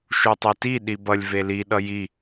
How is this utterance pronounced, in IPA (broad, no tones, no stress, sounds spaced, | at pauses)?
ʃ u tˤ ɛ t i ɗ i b ʌ lʲ v e l i ɗ ʌ j i